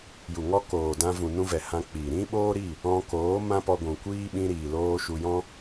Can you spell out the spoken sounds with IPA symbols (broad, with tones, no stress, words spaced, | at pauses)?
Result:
ju˨ŋɔ˦ koː˨dã˧vũ˨ nũ˧vɛ˨ hã˧k͡piː˨ ɾĩ˦ɓoː˦ɾi˦˨ | ɔ̃˧koː˨˦ mã˦pɔ˧ɡʷũ˨kʷiː˦ ɓĩ˧ɾiː˨ loː˧ ʃu˧ jɔ̃˦